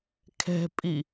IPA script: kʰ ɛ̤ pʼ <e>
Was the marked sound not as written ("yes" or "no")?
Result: yes